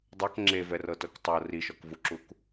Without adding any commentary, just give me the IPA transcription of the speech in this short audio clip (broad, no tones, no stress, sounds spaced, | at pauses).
dˤ ɤ k ŋ͡ǁ e v ɛ r ɤ t ɤ k tˤ ɤ r i ʃ ɔ k v u ǁ u k